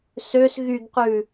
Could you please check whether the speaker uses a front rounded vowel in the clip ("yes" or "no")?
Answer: yes